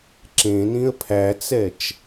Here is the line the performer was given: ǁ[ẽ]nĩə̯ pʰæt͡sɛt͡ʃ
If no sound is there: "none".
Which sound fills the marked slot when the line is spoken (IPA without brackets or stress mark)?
ẽ